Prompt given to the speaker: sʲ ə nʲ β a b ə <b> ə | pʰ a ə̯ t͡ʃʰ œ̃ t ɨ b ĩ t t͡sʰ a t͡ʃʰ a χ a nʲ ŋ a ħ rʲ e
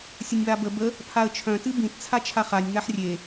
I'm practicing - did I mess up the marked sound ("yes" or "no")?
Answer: no